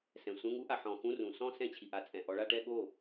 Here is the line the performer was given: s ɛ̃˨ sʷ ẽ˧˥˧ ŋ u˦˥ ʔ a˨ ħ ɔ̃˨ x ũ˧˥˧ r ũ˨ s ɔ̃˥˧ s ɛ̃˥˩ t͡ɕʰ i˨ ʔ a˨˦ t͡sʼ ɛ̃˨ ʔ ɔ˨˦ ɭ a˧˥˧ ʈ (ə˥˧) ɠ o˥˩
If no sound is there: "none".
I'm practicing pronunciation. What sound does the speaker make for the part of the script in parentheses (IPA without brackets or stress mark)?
ɛ˥˧